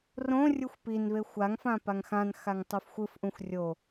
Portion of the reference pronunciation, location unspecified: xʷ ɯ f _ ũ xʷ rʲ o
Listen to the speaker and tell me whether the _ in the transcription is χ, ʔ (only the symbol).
ʔ